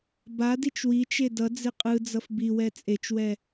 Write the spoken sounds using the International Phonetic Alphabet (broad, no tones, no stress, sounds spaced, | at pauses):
b a d i t͡ʃ w i t͡ʃ e d ʌ d͡z e qʼ ɯ d͡z ʌ f b i w ɛ t͡sʼ e t͡ʃ w ɛ